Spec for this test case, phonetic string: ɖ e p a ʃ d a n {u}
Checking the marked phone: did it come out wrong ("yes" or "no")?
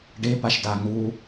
no